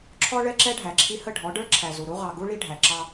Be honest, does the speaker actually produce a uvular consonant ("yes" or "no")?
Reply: yes